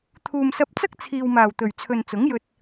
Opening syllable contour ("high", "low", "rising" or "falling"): low